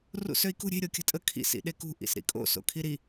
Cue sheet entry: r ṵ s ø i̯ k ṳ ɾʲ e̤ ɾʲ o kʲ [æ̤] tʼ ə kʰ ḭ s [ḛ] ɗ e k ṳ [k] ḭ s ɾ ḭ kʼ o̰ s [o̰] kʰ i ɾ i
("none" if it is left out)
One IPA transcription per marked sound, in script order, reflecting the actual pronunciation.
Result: ə̤, ḭ, ʔ, o̰

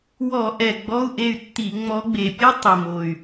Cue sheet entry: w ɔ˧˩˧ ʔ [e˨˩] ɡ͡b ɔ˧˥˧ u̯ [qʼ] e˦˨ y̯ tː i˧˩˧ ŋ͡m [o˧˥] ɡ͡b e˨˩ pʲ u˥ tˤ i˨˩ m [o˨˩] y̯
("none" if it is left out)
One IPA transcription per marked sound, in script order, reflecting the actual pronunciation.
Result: ɛ˨˩, ʔ, ɔ˧˥, o˨˩

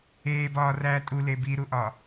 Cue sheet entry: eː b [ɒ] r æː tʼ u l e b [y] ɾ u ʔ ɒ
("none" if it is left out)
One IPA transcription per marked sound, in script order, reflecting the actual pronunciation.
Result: ɒː, i

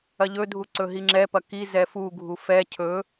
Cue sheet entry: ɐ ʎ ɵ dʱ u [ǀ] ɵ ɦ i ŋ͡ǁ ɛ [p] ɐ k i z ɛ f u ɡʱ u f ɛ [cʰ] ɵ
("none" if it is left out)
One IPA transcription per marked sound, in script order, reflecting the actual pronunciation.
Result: ǀ, p, cʰ

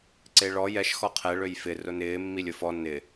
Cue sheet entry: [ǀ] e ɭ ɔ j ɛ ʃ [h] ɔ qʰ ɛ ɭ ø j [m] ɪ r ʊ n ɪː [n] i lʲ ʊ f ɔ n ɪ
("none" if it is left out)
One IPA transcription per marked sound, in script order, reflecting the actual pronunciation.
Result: ǀ, x, f, mː

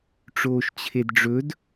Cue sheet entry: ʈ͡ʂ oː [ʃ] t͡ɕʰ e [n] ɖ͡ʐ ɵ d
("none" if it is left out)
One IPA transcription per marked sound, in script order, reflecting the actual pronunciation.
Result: ʃ, d

